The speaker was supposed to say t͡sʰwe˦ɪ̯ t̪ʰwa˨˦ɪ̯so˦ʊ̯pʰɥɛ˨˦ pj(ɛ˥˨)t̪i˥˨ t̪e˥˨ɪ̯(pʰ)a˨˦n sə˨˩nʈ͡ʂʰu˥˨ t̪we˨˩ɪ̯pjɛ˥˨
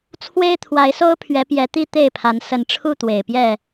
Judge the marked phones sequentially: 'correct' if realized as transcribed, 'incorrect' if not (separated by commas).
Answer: incorrect, correct